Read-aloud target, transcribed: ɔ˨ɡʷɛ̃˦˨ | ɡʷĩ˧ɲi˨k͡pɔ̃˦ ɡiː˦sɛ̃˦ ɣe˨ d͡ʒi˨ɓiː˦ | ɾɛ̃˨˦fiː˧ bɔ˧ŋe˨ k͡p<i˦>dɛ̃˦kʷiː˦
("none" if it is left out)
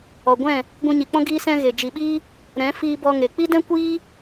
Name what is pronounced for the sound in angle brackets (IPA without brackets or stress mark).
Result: i˦